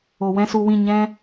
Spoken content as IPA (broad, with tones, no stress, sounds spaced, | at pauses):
o˨ w ɛ̃˦ s u˧ w ĩ˦˨ ɲ ɛ̃˦